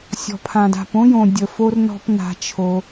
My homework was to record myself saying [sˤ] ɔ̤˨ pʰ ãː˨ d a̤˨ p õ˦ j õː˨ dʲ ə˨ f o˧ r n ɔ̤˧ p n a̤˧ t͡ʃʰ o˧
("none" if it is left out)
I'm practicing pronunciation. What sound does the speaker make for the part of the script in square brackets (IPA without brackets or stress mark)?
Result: sʲ